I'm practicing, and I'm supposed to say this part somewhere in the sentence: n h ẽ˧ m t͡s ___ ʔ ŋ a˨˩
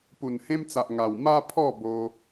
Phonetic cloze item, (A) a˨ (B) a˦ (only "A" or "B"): A